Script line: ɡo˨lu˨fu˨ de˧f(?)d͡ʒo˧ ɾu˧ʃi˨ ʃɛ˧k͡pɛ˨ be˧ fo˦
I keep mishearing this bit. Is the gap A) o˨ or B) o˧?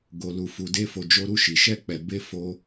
A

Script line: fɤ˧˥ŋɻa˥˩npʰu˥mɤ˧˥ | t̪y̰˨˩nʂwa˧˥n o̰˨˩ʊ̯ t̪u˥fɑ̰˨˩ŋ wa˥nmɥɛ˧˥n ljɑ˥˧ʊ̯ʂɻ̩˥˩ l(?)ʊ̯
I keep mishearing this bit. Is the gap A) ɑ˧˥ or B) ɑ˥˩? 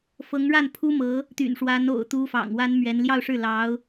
A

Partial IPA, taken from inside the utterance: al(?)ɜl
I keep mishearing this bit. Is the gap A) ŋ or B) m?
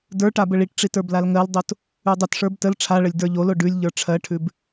A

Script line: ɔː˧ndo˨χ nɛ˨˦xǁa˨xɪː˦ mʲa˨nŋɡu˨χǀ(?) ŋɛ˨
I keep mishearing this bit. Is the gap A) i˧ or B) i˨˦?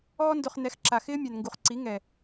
B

